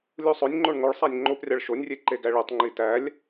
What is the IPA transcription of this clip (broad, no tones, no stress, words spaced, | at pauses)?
lʲusˤɵnʲŋ͡ǃoɳ ŋoɭsˤænʲ ŋ͡ǃoprʲɑɭ ʃonʲrʲe ǃeɡæɭetˤŋ͡ǃi tælʲ